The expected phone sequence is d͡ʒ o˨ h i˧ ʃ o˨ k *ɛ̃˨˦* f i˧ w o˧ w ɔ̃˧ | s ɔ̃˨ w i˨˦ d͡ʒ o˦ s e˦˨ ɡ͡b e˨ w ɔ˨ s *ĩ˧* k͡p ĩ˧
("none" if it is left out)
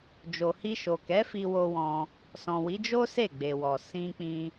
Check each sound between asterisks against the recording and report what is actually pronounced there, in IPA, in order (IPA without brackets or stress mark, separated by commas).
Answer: ɛ˨˦, ĩ˧